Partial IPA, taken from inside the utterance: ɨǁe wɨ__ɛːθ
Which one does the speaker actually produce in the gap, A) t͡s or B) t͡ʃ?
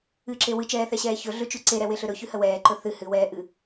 B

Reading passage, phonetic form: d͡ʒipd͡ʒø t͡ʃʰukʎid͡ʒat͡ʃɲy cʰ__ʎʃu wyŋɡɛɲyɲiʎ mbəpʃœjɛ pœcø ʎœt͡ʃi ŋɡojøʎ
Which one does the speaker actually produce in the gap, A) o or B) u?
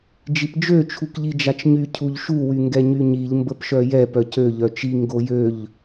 B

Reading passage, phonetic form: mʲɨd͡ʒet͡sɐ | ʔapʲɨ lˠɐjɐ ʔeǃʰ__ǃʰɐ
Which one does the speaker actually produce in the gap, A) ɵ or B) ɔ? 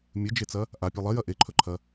A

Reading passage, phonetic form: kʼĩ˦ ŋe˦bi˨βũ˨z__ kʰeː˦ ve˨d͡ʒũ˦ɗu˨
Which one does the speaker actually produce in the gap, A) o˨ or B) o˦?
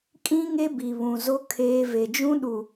B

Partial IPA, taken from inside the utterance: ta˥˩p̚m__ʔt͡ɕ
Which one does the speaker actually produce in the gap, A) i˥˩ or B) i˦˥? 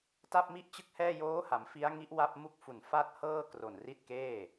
A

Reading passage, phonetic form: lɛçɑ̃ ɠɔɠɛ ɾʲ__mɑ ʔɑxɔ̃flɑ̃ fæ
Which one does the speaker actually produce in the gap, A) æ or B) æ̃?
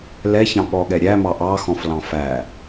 A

